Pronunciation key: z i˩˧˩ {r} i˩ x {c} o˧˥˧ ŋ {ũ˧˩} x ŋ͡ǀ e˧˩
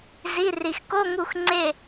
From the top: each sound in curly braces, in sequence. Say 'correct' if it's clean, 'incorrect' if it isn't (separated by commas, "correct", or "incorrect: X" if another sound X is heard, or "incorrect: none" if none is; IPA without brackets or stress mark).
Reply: correct, incorrect: k, incorrect: u˧˩